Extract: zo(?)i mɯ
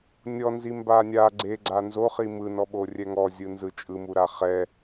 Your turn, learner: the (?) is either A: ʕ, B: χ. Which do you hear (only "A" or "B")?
B